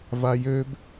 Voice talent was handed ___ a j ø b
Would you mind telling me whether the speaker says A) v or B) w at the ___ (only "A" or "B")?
A